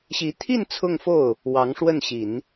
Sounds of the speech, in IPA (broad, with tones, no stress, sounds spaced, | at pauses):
ɕ i˧˥ t̪ʰ i˥˧ n t͡sʰ ʊ˥˧ ŋ f o˥˩ ʊ̯ | w ɑ˧˥ ŋ ʂ w ə˥˩ n ɕ i˨˩˦ n